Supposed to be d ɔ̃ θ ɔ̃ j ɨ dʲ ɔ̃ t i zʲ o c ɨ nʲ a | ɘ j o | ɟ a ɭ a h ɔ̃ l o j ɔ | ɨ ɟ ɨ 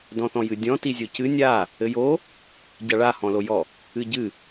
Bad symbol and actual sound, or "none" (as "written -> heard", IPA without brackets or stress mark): none